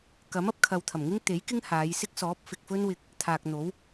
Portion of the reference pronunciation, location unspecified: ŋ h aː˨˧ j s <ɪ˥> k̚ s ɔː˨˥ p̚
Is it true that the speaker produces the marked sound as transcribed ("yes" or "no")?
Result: yes